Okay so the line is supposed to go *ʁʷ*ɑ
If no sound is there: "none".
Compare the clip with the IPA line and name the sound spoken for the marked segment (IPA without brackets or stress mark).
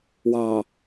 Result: w